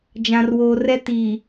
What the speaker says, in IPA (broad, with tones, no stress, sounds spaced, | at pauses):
d͡ʒ ã˨ r w oː˨ r ɛ˦ t iː˨